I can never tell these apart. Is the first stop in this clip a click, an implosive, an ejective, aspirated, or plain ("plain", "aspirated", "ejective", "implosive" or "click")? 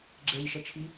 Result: click